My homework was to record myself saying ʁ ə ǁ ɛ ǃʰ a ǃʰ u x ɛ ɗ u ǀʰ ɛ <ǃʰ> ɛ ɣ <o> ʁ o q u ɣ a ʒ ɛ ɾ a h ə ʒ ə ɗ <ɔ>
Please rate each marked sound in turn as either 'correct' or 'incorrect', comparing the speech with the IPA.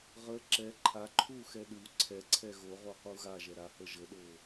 incorrect: ǀʰ, correct, incorrect: o

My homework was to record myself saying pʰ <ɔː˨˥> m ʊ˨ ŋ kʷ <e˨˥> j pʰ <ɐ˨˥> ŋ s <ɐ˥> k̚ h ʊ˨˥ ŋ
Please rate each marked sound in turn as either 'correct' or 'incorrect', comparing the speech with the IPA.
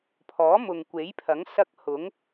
correct, correct, correct, correct

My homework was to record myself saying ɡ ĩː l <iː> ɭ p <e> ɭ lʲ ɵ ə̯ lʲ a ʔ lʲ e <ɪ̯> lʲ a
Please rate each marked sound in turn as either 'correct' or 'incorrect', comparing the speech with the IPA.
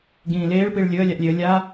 incorrect: eː, incorrect: i, incorrect: ə̯

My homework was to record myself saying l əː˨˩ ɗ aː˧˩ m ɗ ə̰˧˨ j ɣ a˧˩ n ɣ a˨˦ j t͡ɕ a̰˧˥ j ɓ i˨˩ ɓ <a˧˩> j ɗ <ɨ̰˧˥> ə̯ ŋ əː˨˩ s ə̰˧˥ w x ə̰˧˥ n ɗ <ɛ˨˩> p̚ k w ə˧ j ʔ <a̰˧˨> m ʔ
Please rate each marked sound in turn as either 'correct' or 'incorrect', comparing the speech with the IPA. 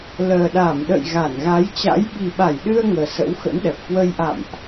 correct, incorrect: ɨ˧, correct, correct

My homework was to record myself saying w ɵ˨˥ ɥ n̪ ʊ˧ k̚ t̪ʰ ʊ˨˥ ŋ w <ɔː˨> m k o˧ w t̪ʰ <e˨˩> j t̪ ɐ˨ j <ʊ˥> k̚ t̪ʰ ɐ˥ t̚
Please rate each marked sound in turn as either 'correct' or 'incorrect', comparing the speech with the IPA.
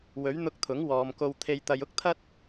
correct, incorrect: e˨, correct

